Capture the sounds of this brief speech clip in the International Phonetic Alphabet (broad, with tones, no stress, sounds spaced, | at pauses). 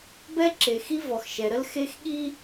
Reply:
b ɛ˦ ǁ e˨ x i˦ v ɔ˨ x ʃ ɛ˨ ɾ ə˦ l x e˦ x ɠ i˦